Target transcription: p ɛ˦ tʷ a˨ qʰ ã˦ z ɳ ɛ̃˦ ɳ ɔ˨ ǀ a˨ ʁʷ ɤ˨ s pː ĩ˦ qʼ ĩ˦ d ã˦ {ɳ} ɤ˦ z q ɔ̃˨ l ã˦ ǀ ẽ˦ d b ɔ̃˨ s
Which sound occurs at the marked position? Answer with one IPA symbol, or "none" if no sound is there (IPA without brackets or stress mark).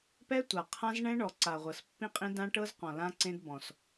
ʈ